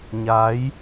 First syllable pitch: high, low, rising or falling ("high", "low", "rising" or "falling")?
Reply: rising